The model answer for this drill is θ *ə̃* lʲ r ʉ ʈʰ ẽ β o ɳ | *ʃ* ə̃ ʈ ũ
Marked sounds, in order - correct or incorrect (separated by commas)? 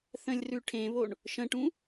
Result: correct, correct